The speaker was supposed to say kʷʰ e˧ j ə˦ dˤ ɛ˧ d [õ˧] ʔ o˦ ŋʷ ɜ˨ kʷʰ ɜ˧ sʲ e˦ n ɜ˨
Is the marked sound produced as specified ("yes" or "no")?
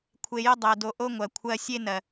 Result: no